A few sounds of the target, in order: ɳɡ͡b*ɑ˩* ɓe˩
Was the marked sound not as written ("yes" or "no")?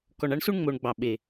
no